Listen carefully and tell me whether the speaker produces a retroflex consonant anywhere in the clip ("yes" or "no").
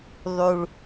yes